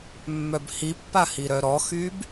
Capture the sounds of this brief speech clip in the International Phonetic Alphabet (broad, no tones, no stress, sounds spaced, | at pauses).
mː œ b h i pː a h i ɾ œ ɾ ɔ x yː b